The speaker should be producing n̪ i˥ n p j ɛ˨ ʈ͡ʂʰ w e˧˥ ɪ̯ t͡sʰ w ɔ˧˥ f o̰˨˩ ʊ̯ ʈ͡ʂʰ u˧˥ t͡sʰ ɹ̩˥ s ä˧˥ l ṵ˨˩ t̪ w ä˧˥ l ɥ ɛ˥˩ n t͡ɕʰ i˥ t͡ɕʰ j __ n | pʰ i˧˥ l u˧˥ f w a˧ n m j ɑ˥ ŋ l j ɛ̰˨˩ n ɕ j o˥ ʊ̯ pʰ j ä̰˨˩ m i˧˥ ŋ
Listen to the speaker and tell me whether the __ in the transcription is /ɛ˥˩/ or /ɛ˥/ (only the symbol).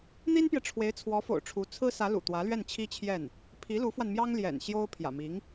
ɛ˥˩